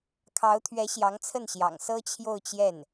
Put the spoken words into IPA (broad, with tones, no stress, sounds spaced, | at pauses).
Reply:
kʰ ɑ˧˥ ʊ̯ t̪ʰ ɥ ɛ˧˥ ɕ j ɑ˧˥ ŋ t͡sʰ ə˥˩ n ɕ j ɑ̰˨˩ ŋ s ɤ˥ t͡ɕʰ j o˥˧ ʊ̯ t͡ɕ j ɛ˥˩ n